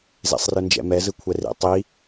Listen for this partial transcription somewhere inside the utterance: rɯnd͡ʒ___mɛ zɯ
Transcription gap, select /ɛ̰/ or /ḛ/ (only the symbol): ɛ̰